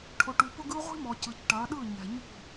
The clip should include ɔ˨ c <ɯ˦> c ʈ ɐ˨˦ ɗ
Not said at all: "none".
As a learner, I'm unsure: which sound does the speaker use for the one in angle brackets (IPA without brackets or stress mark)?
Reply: ɯ˨